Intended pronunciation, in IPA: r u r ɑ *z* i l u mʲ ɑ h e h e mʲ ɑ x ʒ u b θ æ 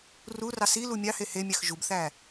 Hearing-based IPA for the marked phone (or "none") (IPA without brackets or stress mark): s